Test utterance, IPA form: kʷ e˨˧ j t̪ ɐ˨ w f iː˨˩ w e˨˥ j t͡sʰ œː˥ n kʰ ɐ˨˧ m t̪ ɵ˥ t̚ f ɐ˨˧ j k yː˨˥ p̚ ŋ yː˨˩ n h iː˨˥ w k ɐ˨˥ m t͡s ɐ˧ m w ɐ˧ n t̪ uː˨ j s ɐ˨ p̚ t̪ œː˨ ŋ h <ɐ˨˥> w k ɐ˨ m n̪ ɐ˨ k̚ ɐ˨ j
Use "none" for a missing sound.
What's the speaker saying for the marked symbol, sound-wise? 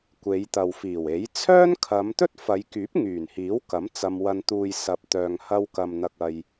ɐ˧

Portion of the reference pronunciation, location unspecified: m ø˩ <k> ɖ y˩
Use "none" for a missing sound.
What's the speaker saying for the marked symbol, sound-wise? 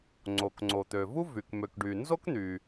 k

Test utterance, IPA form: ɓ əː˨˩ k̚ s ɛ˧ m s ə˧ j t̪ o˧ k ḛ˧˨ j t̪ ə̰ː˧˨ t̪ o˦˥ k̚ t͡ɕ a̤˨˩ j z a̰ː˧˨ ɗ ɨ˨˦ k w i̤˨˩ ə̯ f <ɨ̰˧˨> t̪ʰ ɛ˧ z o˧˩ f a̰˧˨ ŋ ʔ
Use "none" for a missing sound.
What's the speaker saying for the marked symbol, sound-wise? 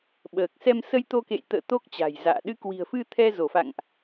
ɨ˧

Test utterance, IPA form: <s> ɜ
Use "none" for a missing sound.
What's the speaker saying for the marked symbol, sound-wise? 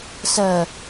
s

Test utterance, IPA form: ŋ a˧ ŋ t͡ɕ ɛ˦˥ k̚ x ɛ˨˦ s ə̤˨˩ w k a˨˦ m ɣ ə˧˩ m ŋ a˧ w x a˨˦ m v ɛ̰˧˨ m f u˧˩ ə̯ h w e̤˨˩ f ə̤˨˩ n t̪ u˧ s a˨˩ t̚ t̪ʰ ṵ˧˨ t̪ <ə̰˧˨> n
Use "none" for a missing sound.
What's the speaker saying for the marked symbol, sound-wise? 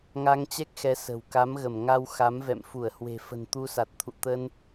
ə˧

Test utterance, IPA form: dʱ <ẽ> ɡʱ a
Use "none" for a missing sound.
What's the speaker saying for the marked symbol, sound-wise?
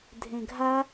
ẽ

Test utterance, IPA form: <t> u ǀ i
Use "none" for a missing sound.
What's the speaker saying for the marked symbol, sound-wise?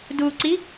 d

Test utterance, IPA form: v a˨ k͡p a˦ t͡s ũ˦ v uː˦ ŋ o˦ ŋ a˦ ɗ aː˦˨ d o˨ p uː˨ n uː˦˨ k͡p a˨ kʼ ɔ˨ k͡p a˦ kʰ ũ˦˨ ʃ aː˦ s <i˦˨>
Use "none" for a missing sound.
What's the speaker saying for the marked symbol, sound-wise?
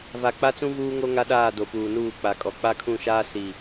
i˦˨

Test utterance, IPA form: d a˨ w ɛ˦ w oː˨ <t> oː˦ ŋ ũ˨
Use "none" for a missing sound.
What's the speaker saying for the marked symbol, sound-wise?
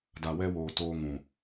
t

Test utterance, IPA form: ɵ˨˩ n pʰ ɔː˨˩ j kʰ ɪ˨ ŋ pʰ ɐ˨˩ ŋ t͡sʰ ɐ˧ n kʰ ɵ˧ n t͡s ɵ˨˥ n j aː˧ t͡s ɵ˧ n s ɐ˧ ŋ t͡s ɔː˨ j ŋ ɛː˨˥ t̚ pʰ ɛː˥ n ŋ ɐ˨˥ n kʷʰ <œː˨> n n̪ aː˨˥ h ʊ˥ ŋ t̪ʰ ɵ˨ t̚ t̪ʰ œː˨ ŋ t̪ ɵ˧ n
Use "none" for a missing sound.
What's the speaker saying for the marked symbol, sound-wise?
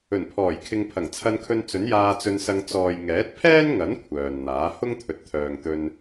œː˨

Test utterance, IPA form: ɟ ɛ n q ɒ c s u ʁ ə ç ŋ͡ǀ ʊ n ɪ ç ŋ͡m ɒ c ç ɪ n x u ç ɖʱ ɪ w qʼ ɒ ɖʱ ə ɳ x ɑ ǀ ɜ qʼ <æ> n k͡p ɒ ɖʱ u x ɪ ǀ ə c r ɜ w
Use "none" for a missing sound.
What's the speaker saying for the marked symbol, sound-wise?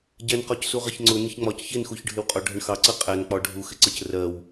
æ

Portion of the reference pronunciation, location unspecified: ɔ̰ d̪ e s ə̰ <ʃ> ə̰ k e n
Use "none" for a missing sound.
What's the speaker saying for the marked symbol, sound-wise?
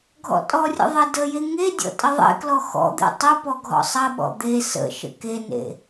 ʃ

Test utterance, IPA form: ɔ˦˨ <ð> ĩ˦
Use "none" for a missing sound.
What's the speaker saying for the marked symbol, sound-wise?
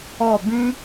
b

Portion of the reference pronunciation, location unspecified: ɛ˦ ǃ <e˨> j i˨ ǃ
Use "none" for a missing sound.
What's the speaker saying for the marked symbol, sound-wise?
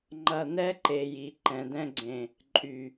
e˨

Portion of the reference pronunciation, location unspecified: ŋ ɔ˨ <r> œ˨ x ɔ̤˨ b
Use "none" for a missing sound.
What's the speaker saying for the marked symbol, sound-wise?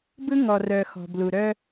r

